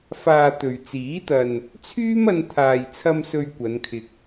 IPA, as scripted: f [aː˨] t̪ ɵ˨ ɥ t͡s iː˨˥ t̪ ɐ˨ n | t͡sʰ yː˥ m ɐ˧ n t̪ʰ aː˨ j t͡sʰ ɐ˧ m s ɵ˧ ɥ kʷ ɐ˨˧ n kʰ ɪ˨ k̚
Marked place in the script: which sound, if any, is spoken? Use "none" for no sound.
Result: aː˨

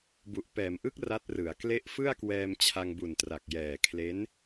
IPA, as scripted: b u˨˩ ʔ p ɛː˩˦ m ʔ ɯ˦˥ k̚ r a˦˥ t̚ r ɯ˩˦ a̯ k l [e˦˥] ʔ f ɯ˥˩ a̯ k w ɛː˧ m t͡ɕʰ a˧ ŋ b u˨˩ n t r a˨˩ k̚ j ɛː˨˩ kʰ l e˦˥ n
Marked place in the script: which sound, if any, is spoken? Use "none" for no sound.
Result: e˦˥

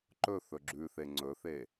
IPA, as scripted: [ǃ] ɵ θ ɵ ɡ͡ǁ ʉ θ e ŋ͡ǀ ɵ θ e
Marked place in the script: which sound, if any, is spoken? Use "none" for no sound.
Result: ǃ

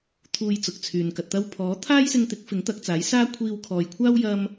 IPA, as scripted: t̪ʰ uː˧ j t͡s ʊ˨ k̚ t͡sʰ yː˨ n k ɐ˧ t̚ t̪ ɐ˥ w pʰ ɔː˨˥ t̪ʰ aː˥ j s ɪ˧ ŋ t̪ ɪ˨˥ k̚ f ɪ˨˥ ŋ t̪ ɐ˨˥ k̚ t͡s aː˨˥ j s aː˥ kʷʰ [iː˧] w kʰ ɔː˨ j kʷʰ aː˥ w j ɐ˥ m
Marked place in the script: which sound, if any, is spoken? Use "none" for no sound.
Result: iː˧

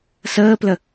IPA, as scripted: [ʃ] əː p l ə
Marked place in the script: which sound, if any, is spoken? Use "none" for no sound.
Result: s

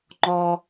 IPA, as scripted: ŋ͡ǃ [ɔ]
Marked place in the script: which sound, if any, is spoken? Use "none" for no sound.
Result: ɔ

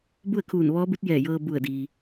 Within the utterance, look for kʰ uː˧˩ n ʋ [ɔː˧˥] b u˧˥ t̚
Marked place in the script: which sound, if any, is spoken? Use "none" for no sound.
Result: ɔː˧˥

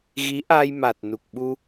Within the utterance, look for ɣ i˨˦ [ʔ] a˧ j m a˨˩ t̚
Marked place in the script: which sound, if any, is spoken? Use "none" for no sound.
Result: ʔ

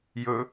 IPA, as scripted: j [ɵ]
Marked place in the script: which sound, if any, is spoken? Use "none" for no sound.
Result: ɵ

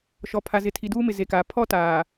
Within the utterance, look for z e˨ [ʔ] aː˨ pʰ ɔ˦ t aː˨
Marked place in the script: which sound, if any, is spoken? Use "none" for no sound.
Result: k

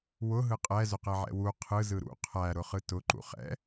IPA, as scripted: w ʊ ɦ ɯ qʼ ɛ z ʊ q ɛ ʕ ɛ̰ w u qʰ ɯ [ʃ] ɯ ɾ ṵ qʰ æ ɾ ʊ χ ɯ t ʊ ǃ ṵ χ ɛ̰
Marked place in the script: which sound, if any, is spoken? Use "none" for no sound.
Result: z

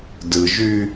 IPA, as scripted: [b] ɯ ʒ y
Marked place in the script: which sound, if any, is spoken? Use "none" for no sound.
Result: d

